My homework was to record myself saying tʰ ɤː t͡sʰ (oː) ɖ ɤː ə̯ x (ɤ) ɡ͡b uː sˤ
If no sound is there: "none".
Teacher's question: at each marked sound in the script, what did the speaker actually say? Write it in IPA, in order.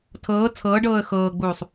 ɤː, ɤː

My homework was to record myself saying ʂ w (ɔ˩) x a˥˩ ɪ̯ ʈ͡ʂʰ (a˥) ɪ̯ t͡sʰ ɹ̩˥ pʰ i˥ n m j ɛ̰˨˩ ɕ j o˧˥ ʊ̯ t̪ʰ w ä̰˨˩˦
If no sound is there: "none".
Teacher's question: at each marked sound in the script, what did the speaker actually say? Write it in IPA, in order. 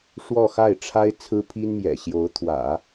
ɔ˥˧, a˥

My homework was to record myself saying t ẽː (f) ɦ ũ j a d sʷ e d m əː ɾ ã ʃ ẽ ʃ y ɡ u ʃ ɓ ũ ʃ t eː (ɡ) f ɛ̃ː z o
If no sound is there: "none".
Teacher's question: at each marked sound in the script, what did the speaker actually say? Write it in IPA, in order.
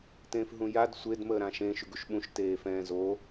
f, none

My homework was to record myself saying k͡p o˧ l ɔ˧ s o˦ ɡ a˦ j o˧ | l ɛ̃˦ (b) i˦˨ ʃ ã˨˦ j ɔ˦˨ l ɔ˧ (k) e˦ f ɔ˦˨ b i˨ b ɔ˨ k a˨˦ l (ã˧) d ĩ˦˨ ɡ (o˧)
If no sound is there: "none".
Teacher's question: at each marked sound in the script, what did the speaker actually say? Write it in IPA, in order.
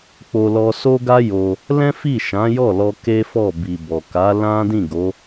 f, k, ã˦, o˨˦

